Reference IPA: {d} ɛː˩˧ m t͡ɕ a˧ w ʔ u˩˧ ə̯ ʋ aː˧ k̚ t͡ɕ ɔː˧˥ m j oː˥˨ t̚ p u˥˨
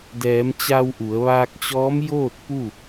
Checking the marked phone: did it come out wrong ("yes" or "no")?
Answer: no